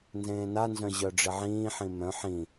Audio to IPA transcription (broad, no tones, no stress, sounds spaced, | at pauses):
n z ẽː n a n z œ̃ ʑ œ ɖ͡ʐ ɪ ʕ ĩː ħ ĩ m œ̃ ħ ĩ